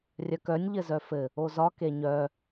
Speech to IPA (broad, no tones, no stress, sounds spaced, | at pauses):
rʲ œ k œ nʲ ʎ ɘ z œ f ɘ | o z ɒ k e ɲ œ